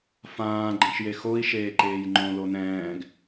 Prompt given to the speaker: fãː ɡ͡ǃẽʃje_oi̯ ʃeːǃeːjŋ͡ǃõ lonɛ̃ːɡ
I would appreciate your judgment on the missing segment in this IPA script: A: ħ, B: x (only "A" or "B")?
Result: B